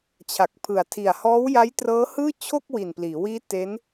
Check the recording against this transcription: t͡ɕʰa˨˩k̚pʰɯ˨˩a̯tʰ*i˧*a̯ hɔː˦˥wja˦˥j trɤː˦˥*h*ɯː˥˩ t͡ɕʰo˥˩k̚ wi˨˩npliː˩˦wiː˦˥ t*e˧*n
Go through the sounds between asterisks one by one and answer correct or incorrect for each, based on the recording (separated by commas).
incorrect, correct, incorrect